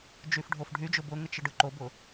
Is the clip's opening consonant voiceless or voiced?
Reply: voiced